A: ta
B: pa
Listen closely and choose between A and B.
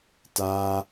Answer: A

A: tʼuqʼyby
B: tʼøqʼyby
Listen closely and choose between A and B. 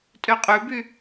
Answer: B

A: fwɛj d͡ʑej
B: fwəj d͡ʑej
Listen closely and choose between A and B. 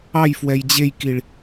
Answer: A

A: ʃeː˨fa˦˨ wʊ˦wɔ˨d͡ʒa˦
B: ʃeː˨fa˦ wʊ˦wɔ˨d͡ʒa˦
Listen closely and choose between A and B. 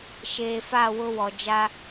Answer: A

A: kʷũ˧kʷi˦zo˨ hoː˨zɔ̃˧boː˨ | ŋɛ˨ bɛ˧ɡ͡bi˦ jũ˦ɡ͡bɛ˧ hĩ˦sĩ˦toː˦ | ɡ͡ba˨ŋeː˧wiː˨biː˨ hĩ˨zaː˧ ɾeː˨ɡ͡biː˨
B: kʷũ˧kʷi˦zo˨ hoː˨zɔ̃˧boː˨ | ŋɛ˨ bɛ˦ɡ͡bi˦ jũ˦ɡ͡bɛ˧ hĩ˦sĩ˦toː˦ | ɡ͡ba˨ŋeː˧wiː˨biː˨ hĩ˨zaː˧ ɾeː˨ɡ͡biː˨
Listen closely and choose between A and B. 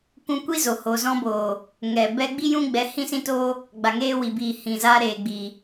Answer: A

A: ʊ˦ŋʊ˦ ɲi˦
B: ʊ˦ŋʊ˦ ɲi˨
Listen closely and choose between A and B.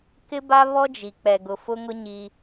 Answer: A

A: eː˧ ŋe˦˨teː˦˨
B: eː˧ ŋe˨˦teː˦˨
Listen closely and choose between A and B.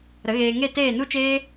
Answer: A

